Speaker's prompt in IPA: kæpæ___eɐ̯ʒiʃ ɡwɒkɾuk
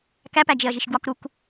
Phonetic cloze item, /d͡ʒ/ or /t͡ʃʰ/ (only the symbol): d͡ʒ